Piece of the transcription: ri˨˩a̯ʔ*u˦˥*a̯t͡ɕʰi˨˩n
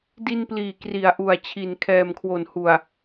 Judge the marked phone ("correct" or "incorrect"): incorrect